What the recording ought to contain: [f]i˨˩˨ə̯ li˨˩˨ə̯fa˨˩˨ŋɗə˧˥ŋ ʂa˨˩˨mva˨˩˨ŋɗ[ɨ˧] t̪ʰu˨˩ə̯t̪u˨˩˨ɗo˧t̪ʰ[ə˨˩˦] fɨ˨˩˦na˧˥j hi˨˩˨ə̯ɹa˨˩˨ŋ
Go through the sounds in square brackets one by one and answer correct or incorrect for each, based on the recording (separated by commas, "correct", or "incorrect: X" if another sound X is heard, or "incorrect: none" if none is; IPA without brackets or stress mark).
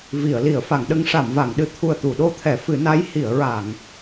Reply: incorrect: v, incorrect: ɨ˨˩, incorrect: ɛ˨˩˦